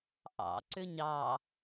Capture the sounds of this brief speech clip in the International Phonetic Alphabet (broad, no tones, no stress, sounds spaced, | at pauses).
ʔ ɑ̰ ǀ ʏ ɲ ɑ